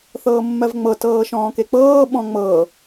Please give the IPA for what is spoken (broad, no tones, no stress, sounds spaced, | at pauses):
θ ɤː mː ɜ v ŋ͡m ɤ t ɤː ʃ ɔ̃ː k e k͡p ɤː ɓ ɔ̃ ŋ͡m ɤ